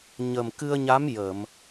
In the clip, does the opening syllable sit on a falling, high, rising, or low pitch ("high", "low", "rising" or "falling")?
low